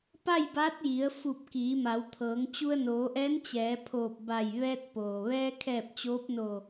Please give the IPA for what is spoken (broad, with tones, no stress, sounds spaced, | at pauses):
p a˥˨ j b a˧˥ t̚ j i˩˧ ə̯ f u˧˩ p̚ k iː˩˧ m a˩˧ w t̪ʰ ɤː˩˧ ŋ t͡ɕ u˧ ə̯ n oː˩˧ ʔ ɛː˧˥ n t͡ɕ ɛː˩˧ pʰ oː˧˩ p̚ b a˧˩ j ʋ ɛː˧ t̚ p oː˩ ʋ ɛː˧ kʰ ɛː˧˩ p̚ t͡ɕ oː˧˥ p̚ n o˧˩